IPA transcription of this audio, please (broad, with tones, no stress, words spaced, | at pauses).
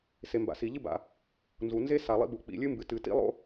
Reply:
se˩ mba̰˩si˩ʎɨ˥ba̰˩ | nzu˩ nze˥ sa˩lˠḭ˥bu˩ k͡pḭ˩lʲɨ˥mbɨ˩ tɨ˩tḭ˥lˠo̰˥